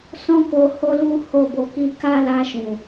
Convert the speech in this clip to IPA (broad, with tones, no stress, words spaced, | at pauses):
sɔ̃˦ko˧ ho˦lu˦ ho˦˨bo˧ki˦ ka˦la˧ ʃũ˨